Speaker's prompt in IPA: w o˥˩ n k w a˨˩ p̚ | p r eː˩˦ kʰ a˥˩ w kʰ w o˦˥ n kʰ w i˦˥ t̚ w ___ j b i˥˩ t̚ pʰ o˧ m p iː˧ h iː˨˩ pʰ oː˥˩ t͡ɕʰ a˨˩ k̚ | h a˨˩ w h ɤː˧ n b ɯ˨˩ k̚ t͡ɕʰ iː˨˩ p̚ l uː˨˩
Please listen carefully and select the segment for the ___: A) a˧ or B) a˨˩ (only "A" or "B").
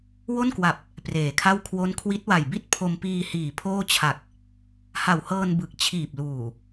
B